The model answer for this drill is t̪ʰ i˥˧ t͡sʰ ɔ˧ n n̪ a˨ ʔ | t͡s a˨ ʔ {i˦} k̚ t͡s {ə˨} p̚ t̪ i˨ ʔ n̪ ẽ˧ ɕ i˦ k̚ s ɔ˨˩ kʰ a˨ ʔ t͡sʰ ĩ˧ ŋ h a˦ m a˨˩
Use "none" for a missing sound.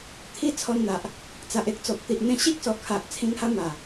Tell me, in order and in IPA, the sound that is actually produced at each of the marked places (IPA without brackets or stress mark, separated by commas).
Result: e˦, ɔ˨